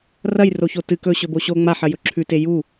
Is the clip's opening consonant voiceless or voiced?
voiced